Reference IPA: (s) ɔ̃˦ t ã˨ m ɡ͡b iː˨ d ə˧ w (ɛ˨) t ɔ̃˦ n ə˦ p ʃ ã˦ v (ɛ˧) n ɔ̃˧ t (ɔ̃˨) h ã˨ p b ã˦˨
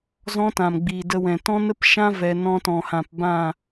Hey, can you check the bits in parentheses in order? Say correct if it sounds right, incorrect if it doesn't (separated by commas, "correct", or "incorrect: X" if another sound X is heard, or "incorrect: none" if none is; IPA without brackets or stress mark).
incorrect: z, incorrect: ɛ̃˨, correct, correct